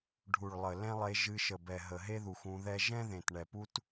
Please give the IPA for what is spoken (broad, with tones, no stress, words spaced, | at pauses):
ɖʱu˨ɭlˠə˨ lɛ̃˦lˠe˧ ʒɨ˧ʃə˨bɛ˨ ɦə˨ɦe˦ðu˨x ũ˧ðɛ˦ ʒɛ̃˦ðẽ˨tɳɛ˨pu˦t